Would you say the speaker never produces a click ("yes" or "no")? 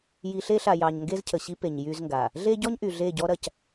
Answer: yes